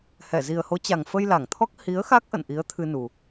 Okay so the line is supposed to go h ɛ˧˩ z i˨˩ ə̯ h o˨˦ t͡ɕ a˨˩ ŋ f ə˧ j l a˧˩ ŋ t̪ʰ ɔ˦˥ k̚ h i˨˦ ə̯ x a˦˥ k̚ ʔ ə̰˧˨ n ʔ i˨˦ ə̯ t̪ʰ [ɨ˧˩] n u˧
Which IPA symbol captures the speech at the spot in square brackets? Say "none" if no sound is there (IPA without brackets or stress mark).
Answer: ɨ˧